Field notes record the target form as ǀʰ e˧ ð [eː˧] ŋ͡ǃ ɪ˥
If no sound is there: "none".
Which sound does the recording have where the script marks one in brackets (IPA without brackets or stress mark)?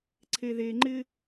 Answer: eː˧